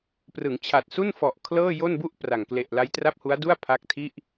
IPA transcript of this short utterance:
prɯ˩˦ŋt͡ɕʰa˨˩t̚su˥˩nfɔ˨˩ʔ kʰlɤː˥˩jo˥˩nbu˥˩ʔ pra˨˩ŋ kle˨˩ʔla˦˥jtra˥˩p̚hu˦˥a̯ du˥˩a̯pʰa˦˥k̚tʰi˥˩ʔ

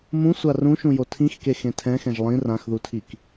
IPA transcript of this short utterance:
mũsʷa rũʃũjo tʰĩxkexẽ tʰɛ̃xɛ̃ʒ lˠĩ rãxðutʰik

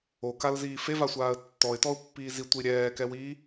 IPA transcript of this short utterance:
okalziː fevasʷaːə̯ tːɔɪ̯tɔʊ̯pːiː zitʷi ɾʲɛːkɛwiː

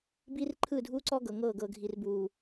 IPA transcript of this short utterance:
biː˦rǃʰɯː˦˨dʱuː˦ǀɔ˦ ɡɤ˨ ŋɤː˦˨ɡɤ˨ɡʱi˨rbuː˨

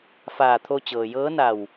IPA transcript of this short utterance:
faː˧˩t̪ʰo˧ t͡ɕɤː˩jɤː˧˥na˧˩w

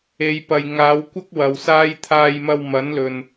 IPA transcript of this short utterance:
e˨˧jpɐ˨j ŋaː˨˧wkʷɐ˥k̚ wɐ˨wsaː˥j t̪ʰaː˧jmɐ˧wmɐ˨˥n lɵ˨n

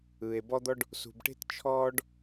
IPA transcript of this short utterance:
ɯ˩e̯bɔ˦d̪ɔ˦ɖ | sṳ˨bʈe̤˥tt͡ʃʰɔː˦ɖ

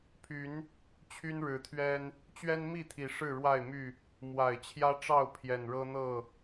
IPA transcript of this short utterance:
pʰy˨˦n | t͡ɕʰy˦nɻɻ̩˨˦t̪ʰɥɛ˦n | t͡ɕɥɛ˦nmi˥˨t̪ʰi˨˩ ʂɻ̩˥˨ɻwa˥˨ɪ̯my˥˨ | mwa˨˩ɪ̯t͡ɕʰjä˦ʈ͡ʂɑ˥˨ʊ̯ pʰjɛ˨˩nɻɤ˦n̪ɤ˥˨

